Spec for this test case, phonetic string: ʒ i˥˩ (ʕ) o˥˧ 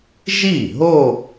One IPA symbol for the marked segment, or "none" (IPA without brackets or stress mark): ɦ